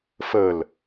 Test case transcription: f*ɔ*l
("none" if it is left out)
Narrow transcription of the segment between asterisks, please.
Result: ə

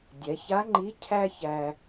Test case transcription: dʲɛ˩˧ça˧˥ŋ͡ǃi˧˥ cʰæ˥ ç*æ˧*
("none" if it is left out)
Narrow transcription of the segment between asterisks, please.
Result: æ˧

